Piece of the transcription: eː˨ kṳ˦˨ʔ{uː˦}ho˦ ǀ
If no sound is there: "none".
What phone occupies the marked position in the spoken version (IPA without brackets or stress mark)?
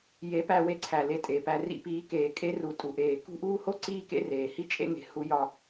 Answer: uː˦